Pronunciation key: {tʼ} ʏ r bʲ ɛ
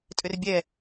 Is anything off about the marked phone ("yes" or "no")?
no